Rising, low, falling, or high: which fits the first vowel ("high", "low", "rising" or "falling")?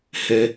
high